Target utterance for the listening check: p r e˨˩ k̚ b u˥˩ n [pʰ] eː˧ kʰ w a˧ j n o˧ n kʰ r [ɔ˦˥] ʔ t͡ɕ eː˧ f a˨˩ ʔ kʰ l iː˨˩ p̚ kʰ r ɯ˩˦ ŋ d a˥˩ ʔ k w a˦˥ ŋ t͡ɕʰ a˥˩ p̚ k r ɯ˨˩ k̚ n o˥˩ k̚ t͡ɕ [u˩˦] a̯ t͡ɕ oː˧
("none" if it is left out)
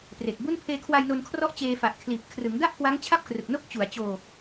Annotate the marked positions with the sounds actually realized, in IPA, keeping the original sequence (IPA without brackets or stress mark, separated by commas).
pʰ, ɔ˦˥, u˩˦